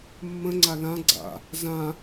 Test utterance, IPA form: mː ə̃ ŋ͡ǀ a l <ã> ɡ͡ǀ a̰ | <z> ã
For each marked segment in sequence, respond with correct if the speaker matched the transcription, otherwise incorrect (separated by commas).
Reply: correct, correct